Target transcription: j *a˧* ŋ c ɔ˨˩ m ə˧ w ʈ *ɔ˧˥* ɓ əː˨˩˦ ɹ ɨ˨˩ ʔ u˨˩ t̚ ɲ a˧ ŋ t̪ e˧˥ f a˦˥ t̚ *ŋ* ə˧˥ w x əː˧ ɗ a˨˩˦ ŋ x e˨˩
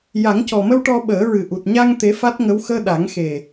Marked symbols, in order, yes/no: no, no, yes

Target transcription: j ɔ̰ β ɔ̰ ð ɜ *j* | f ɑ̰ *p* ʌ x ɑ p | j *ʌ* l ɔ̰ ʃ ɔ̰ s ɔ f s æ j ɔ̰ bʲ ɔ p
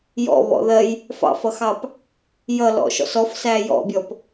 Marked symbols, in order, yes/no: yes, no, yes

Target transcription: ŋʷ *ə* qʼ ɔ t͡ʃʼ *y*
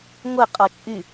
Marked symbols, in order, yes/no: yes, yes

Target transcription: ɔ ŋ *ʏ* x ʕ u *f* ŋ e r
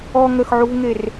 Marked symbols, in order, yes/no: no, no

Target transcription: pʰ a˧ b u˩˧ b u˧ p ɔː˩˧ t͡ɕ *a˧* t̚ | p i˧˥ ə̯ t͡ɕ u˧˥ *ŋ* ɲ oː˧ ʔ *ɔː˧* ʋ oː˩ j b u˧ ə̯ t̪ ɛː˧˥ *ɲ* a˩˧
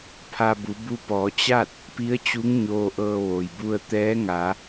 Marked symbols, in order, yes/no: no, yes, no, no

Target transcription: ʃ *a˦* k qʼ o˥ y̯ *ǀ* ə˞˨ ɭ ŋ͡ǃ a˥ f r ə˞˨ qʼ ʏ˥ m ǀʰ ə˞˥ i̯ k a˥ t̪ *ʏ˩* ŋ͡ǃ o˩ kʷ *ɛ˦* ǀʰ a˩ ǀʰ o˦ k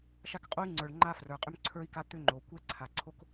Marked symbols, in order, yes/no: yes, no, no, yes

